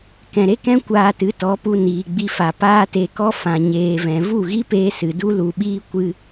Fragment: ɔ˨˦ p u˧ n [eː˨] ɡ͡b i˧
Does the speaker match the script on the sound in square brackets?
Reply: no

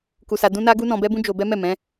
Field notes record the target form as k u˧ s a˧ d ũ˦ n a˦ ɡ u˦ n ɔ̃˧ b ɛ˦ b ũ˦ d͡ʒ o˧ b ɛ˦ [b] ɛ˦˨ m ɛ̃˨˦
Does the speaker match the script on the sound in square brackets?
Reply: no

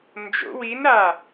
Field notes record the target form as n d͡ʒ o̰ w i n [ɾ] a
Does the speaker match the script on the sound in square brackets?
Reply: yes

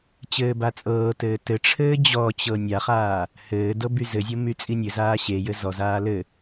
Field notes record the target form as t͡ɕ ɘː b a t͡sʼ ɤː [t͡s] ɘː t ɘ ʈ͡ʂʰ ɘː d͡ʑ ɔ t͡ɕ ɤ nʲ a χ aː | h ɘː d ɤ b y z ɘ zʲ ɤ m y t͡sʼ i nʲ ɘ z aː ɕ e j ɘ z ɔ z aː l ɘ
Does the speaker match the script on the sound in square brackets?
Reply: no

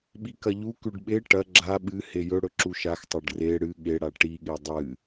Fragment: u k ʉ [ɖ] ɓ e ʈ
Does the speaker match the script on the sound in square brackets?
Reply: yes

